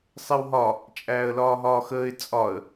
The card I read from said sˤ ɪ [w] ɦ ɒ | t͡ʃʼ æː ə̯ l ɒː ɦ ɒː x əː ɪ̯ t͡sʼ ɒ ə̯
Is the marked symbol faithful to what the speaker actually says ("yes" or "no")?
yes